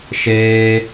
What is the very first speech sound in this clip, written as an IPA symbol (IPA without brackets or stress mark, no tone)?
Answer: ʃ